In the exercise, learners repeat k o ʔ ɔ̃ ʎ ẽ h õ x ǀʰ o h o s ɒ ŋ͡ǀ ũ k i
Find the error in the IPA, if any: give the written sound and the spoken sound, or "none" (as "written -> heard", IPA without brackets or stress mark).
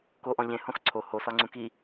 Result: none